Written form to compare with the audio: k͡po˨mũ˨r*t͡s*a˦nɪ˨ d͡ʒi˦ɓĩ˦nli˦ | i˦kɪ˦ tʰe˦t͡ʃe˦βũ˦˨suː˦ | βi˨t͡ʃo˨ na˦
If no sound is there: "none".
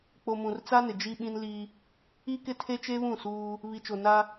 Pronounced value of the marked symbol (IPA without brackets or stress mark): t͡s